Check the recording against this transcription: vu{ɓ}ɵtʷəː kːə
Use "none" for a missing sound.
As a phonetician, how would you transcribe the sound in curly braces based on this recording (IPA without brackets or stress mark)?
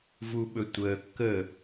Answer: ɓ